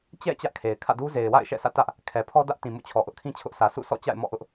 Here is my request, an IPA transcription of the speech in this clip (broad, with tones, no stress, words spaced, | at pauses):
t͡ɕɛ̰˦˨ t͡ɕä˦ʔkʰe˨ɪ̯ kʰä̰˦˨du˦ ze˨ɪ̯wa̰˦˨ɪ̯ ʃɛ̰˦˨sä̰˦˨tä˦ʔ | kʰɛ˨pʰɔ˦dä˦ʔ tĩ˨ mṵ˦˨t͡ɕʰɔ˨ʔʊ˦ʔkʰĩ˦ t͡ɕʰʊ˦ʔsä˨ sṵ˦˨sʰɔ̰˦˨ t͡ɕa̰˦˨ɪ̯mɔ̰˦˨ʔʊ˦ʔ